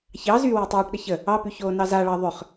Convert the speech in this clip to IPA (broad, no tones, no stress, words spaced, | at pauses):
çɑ zy wɪwtˤyːʈɗə çə | ɑpy çoːnɑzaɭɑ ðˤʏχ